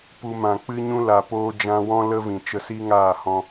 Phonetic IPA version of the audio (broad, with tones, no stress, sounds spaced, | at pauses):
p u˧ m ã˨ k͡p ɨ˦ ɲ ũ˦ l a˨ p oː˧ d͡ʒ ã˧ w ɔ̃˦ l ə˦ v ĩ˨ t͡ʃ ə˧ s i˦ ŋ aː˦˨ h ɔ̃˧